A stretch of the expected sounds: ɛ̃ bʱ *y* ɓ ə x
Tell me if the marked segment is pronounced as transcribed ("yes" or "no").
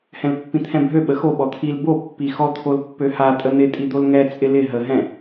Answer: no